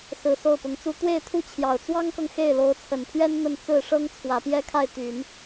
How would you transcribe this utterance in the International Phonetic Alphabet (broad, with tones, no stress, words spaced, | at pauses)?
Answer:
sɹ̩˨˩ so˥˩ʊ̯pʊ˧˥ŋt͡su˥ t̪we˥˧ɪ̯t̪ʰu˥˩t͡ɕʰjɑ˨˩ʊ̯ t͡swɑ˥ŋkɤ˨ŋ xe˥˩ɪ̯lo˧˥ʊ̯t͡sʰə˨˩npʰɥɛ˥n n̪ə˥˧n t͡sɹ̩˥˩ʂɤ˥ŋ t͡sʰwä˨˩pjɛ˥ kʰa˥˩ɪ̯t̪y˨˩˦n